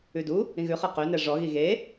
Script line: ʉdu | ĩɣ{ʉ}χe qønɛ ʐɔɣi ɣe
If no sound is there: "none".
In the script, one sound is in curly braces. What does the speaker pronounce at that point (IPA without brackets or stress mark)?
ʉ